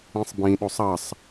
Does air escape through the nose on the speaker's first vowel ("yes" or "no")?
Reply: yes